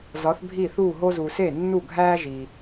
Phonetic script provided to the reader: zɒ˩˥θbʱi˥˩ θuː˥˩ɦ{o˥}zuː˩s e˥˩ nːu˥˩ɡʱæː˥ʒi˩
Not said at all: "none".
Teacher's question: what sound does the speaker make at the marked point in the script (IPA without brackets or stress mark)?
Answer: o˥